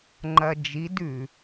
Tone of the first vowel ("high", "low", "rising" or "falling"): low